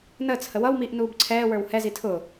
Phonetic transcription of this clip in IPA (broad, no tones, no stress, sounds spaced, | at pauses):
n əː t͡s h ə w ʌ w m iː ʔ n uː b ǀʰ ɛː w ə˞ w h ɛ z i tʰ ʊ